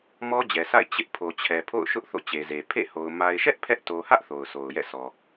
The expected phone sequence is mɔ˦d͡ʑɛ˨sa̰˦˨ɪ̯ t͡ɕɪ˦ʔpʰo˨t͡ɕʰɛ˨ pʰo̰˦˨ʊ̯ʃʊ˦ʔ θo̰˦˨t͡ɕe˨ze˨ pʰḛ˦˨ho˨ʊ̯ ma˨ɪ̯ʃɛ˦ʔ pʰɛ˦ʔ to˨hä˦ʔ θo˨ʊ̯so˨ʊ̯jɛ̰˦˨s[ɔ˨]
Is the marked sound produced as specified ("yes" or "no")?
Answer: yes